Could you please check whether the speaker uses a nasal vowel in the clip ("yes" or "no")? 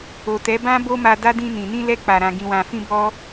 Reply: yes